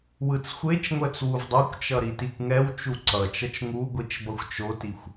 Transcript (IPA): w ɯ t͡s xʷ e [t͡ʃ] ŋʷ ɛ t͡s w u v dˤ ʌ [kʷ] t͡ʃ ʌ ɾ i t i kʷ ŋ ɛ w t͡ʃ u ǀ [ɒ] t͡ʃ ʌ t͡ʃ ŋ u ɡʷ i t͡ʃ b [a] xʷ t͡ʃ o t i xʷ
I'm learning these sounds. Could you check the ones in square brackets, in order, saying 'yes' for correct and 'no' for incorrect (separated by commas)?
yes, yes, no, no